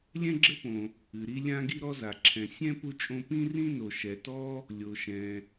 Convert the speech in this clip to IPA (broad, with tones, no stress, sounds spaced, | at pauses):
lʲ ɛ̃˥ ɡ͡ǁ ɘ˥ p õ˩ | ɨ˩ ɾ i˥ lʲ ã˥ ɡ i˥ ɾ ɔ˥ z a˩ ǁʰ ɛ̃˩ sʲ ɛ̃˥ p u˥ t͡ʃʼ õ˥ p ĩ˥ r ĩ˥ n o˩ ʃ ɛ˩ t ɔ˥ | lʲ o˩ ʃ ɛ̃˩